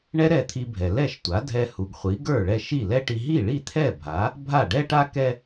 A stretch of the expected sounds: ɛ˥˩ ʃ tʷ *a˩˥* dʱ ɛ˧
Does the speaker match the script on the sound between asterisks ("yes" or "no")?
yes